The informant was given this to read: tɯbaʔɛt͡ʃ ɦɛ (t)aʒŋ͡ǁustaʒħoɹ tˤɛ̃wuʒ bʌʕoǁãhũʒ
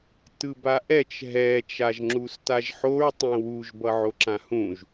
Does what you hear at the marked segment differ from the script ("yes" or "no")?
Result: yes